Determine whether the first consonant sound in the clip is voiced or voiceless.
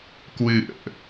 voiceless